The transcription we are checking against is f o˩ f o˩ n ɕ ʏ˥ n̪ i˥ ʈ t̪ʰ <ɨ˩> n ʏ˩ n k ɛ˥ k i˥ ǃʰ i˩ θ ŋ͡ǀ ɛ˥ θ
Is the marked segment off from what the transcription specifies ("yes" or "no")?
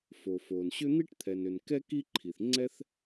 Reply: yes